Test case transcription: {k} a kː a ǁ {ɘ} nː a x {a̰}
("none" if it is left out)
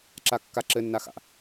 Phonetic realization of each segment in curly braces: ǁ, ɘ, a̰

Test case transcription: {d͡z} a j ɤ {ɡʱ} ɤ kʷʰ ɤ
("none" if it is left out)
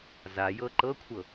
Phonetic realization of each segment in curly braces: z, ǃ

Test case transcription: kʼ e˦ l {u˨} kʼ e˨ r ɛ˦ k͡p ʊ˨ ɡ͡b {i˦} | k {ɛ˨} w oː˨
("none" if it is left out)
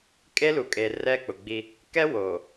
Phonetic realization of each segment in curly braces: u˨, i˦, ɛ˦

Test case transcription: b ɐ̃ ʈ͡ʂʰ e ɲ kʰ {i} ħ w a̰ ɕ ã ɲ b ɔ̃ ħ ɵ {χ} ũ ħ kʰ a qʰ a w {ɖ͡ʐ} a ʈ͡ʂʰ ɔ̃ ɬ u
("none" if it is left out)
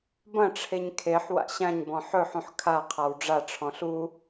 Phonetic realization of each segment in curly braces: e, ħ, ɖ͡ʐ

